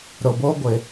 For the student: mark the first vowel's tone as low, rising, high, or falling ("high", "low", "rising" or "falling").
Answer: low